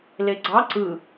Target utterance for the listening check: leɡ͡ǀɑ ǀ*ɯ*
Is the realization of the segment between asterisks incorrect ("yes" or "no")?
no